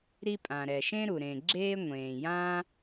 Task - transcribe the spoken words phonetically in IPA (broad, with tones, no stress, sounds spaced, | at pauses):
ɾ i˦ pʼ ã˨ ɾ ɛ˨ ʃ ẽ˦ ɾ u˨ ɾ ẽ˨ ɡ͡ǁ eː˦ ŋʷ ẽː˨ j ã˦